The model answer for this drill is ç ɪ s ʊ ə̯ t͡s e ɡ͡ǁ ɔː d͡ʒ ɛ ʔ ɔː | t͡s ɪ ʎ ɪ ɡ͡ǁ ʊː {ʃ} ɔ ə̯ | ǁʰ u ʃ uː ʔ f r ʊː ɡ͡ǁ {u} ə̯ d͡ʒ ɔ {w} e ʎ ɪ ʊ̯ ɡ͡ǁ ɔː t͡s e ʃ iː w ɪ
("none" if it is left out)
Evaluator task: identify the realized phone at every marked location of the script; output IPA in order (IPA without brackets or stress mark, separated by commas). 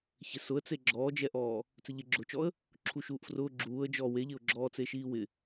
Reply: t͡ʃ, uː, w